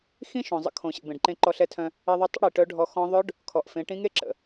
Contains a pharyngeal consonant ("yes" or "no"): no